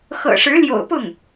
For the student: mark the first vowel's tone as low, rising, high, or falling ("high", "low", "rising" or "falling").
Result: low